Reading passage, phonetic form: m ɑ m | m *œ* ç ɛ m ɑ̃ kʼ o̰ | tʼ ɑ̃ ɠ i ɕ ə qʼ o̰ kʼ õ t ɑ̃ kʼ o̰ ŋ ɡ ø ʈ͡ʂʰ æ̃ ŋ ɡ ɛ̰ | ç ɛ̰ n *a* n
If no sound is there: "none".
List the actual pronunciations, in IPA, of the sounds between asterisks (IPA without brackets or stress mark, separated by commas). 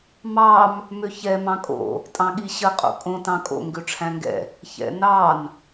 ø, ɑ